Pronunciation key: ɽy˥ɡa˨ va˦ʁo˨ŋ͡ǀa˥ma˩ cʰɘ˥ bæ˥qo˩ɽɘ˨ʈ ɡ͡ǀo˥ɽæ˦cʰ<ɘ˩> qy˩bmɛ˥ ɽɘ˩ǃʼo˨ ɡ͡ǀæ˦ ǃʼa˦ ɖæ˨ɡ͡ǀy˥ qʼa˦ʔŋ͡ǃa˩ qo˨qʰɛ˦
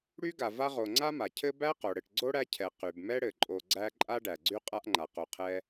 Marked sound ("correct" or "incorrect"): incorrect